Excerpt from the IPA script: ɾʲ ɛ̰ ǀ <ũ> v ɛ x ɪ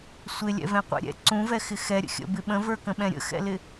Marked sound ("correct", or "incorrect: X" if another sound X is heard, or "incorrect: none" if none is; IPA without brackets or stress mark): correct